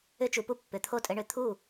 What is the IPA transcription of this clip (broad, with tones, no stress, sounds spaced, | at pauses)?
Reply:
ʏ˦ t͡ʃ u˩˧ p u˦ pː ʏ˩˧ t̪ʰ o˥˩ tʼ ɘ˦ ɳ ʏ˩˧ t̪ʰ u˥˩